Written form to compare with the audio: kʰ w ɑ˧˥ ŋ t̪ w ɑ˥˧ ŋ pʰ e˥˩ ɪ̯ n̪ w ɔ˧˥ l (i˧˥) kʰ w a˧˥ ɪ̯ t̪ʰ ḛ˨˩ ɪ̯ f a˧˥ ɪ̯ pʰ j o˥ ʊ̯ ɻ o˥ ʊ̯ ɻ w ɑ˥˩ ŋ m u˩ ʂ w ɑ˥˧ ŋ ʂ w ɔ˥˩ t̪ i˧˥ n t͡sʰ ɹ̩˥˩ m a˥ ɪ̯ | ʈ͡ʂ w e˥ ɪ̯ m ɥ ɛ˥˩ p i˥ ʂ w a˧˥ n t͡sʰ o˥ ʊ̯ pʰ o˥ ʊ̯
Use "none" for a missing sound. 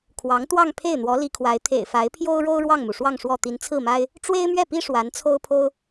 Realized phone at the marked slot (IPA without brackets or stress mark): i˧˥